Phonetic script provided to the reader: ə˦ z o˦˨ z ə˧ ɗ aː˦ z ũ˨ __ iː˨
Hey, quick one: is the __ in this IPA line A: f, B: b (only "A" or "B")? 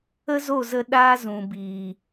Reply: B